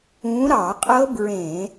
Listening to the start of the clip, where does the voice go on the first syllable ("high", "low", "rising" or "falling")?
rising